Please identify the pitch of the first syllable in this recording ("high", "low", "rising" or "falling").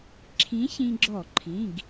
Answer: rising